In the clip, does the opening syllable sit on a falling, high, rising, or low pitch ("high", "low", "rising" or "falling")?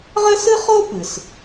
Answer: high